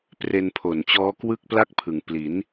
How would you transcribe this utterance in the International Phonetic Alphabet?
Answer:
p r e˧ n pʰ o˨˩ n t͡ɕ ɔː˦˥ k w ɯ˥˩ k̚ p l a˥˩ k̚ pʰ ɯ˩˦ ŋ p l i˩˦ n

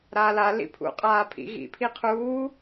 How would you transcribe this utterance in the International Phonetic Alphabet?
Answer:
ɾ aː l a l ḭ pʰ ṵ qʼ aː pʰ ḭ ɣ ḭ pʰ i qʰ uː

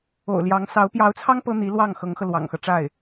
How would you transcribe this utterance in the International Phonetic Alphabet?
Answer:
o̰˨˩ ʊ̯ l j ɑ˧˥ ŋ s ɑ˧˥ ʊ̯ p j ɑ˧˥ ʊ̯ t͡sʰ ɑ˥ ŋ p ɤ˥ n̪ i˧˥ l w ɑ˥˩ ŋ x ɤ˧˥ ŋ x ɤ˧ l w ɑ̰˨˩ ŋ x ɤ˦ ʈ͡ʂ a˥˩ ɪ̯

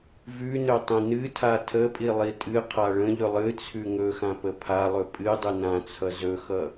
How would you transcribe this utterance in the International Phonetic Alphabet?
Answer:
v ʉ n ɵ tˤ ĩ n ɨ tʰ a tʰ ə pʼ i lˠ i tʼ ɨ qʰ a ɭ ə̃ ʎ ɵ lˠ ɨ t͡sʰ ʉ ŋ ɵ x ã p ə pʰ a lˠ ɵ pʼ ɨ dˤ ɨ n ã t͡sʰ ʌ z ɵ x ʌ

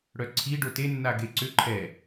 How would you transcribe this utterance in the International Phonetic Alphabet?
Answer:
ɽ œ ǀʰ i ɖ o t e nː a ɡ e ǀ ʏ ǃʰ ɛ

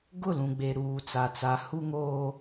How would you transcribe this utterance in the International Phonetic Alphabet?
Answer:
ɡ ʊ˦˨ l ũ˨ ɡ͡b e˨ ɾ uː˨ t͡s a˨ t͡s a˨ h u˦ ŋ oː˦

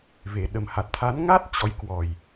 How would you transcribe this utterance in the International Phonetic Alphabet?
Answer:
v e˨˩ ɗ ə˨˩ m h a˨˩ t̚ t̪ʰ a˨˦ n ŋ a˦˥ t̚ t͡ɕ ɔ˨˦ j k w ɔ˨˩ j

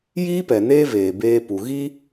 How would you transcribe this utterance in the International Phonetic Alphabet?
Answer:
j iː˦ p ɛ˨ n eː˦ v eː˨ b eː˦ p u˨ ɣ i˦

